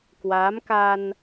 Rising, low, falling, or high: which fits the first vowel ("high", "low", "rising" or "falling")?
rising